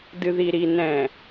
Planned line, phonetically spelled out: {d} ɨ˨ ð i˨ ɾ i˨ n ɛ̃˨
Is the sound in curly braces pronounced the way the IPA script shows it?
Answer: yes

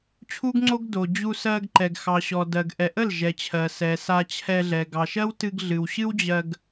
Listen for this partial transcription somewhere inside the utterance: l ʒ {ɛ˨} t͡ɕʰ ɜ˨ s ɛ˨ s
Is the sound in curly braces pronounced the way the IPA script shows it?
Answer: yes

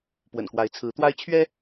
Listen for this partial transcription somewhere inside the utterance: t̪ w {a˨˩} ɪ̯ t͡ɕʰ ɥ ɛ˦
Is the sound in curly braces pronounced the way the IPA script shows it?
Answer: no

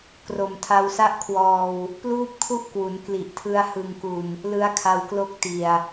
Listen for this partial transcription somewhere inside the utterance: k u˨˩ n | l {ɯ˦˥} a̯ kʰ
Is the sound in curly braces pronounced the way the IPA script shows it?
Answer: yes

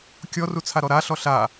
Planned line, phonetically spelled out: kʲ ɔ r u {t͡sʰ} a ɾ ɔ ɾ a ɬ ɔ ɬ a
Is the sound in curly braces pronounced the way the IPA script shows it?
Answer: yes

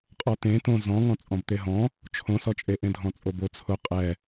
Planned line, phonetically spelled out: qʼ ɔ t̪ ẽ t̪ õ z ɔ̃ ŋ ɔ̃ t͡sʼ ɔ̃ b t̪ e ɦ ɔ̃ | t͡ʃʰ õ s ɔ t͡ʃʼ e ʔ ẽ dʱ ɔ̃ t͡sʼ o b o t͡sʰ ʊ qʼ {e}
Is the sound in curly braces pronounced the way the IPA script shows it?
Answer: no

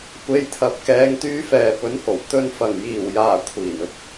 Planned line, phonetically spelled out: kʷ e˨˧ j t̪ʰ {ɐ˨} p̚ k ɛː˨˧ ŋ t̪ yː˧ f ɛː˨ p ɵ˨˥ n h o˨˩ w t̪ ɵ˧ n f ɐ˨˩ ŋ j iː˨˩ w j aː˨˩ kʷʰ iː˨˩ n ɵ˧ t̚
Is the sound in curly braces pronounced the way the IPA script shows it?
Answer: yes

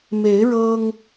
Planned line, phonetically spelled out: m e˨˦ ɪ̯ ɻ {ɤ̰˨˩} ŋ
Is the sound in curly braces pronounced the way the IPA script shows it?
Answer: no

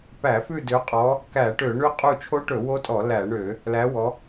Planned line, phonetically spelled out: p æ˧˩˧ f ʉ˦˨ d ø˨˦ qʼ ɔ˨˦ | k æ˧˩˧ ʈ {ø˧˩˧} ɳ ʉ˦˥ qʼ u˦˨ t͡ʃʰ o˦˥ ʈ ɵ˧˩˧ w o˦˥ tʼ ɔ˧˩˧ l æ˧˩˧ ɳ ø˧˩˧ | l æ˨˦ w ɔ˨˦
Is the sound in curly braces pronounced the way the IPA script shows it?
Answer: yes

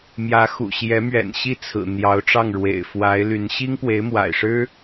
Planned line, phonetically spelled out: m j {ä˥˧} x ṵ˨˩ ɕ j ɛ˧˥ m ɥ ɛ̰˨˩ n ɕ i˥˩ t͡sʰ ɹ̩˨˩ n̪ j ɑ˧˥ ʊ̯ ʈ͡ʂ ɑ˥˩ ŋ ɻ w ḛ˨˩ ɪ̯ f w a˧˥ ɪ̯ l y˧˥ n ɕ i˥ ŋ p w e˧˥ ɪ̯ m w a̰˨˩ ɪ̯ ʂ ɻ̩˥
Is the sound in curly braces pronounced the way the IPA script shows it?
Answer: no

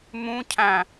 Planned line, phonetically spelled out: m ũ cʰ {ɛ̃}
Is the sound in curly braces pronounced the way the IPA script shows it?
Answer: no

